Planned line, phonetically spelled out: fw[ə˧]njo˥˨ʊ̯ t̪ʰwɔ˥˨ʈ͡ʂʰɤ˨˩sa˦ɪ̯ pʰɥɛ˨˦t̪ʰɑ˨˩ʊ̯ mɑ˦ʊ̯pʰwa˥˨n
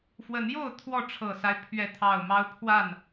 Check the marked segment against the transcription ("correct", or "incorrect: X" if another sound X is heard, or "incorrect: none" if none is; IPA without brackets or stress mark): incorrect: ə˨˦